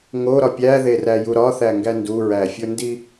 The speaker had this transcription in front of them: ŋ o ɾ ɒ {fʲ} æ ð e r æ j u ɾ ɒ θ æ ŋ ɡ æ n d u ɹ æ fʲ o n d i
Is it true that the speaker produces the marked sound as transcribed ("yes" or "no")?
no